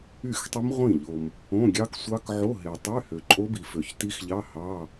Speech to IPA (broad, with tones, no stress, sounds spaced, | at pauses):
y˥˩ x tˤ y˦˥ m ʁʷ ĩ˥˩ ʎ o˨ m | õ˧˥˧ ɡʲ ɑ˦˥ k sʷ ɑ˦˥ k ʕ o˧˥˧ ɦ e˨ tˤ y˧˥˧ h ø˨ ǃʼ o˦˥ b i˨ f ø˨ ç t i˦˥ x ʎ ɑ˧˥˧ h ɑ˧˥˧